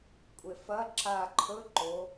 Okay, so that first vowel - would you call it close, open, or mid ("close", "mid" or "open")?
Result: mid